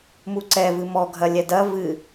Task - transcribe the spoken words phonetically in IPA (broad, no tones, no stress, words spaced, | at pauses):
muǀɛ vɨmɔ ɡʱɐlʲɛdɐ vɨ